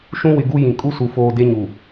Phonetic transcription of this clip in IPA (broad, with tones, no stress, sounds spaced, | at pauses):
ʃ ũ˦ w ɪ˨ ɡ u˦ j ĩ˨ kʼ u˦ s u˨ f oː˨ d e˦ ɲ u˨